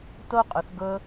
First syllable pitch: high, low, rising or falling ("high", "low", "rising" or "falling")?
high